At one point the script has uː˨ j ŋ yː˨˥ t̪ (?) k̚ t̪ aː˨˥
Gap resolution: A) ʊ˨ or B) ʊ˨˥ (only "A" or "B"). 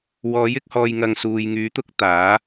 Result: B